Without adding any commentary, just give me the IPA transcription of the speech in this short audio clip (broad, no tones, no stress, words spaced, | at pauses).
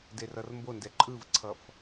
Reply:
derʌrmbondɛ ǃʼɯvǀʰʌf